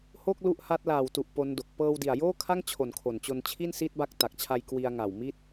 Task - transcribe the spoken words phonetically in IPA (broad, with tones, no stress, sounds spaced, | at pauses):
h o˥˩ k̚ l u˦˥ ʔ h a˦˥ t̚ l aː˨˩ w t u˨˩ ʔ p o˦˥ n d o˨˩ k̚ p ɤː˧ w d i˨˩ a̯ j oː˥˩ kʰ a˥˩ ŋ t͡ɕʰ o˨˩ n kʰ o˨˩ n t͡ɕ o˧ n t͡ɕʰ i˥˩ n s i˦˥ t̚ b a˦˥ k̚ t a˨˩ k̚ t͡ɕʰ a˧ j k w i˧ a̯ ŋ a˨˩ w m i˥˩ t̚